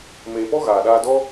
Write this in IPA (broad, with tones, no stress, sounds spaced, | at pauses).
m eː˨ p ɔ˦ ɣ aː˨ ɗ aː˧ d ɔ˦